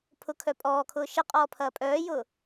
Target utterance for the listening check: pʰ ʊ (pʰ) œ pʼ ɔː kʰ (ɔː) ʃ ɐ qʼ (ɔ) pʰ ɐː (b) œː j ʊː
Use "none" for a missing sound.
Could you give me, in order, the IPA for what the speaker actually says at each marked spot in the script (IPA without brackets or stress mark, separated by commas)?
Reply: kʰ, ʊː, ɔː, pʼ